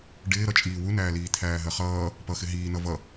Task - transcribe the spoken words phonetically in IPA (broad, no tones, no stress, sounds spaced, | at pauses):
ɖ ɪː ɾ ʌ t͡ʃʼ iː w u n æː l iː t̪ʰ æː ɦ ɜ χ ʌː | p ʌ x ɪ ɦ iː n ʌ v ʌ